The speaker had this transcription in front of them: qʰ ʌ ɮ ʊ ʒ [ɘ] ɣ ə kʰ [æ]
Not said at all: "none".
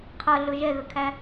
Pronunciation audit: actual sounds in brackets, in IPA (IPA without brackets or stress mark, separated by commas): ɛ, æ